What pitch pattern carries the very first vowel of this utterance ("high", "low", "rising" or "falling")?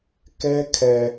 high